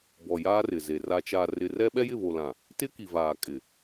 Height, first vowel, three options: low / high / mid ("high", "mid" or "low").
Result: mid